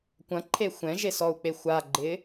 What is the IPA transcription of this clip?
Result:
kʷ ɐ̃ ǃʰ e xʷ ɛ̃ ʒ e s ɔ u̯ k͡p e xʷ a ɡ͡ǃ ɪː

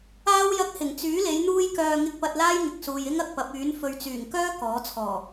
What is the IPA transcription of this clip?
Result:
aː˥ w j ɐ˧ k̚ h ɪ˨˩ ŋ t͡s yː˨˥ l e˨˧ j n̪ uː˧ j k œː˨ ŋ ɪ˧ k̚ p ɐ˧ t̚ l aː˥ j ŋ ɪ˨ k̚ s uː˨ j ɪ˥ ŋ ɐ˨ k̚ p ɐ˨˥ p̚ yː˨˥ n f ɵ˨ ɥ t͡s yː˨˩ ŋ k œː˥ k ɔː˨˥ t͡sʰ ɔː˨˩

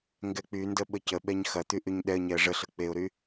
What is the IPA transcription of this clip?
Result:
ŋ ɡ ɛ k͡p y n d ə ɓ ə c ə ɓ ɛ ɲ x ɐ t̪ y ʔ y ɲ ɗ ɛ ə̯ ɲ ɛ ə̯ ʐ ə ɬ ə k͡p e ʊ̯ ɾ y

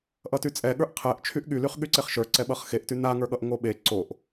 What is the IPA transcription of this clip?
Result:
ʔ ʌ t y t͡sʼ ɛ ɠ ə˞ ʔ qʰ ɛ ʔ t͡ʃʰ y ʔ ɠ y l y χ ɠ y ǀ e χ ʃ ə˞ ǀ ɛ ɓ ʌ χ x e ʔ t y n a ŋ ə˞ ɠ ʌ ʔ ŋ o ɓ e ǀ o ʔ

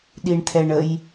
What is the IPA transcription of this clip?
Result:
ɗ i ɳ t̪ʰ ɛ ɳ ə j

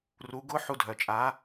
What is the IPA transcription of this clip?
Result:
r u˩˥ ɡ ʊ˧˥ ħ u˧ dʱ œ˩ t͡ʃʼ a˩˥

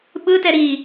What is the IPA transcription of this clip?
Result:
ɓ ɯ t ɛ ɾ i

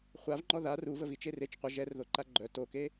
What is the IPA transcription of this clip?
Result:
χʷ a v ŋ͡ǃ ɔ ð a r u v ə v i t͡ʃ e r e t͡ʃ qʷ ə ʒ ɛ r ð o ǃ a ɡ͡ǃ œ t o k e

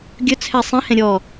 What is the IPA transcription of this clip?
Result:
ɡʲ ɵ t͡sʰ ɛ sˤ ĩ h ɛ̃ ɾʲ ɔ

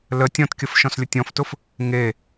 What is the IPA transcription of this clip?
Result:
l ə tʲ ɔ̃ t kʲ ə f ʃ ɔ̃ s lʲ ʊ tʲ ɔ̃ f t ʊ f | ŋ e

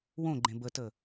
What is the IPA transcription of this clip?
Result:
w õ ɡ͡ǃ ẽ b ə t ə

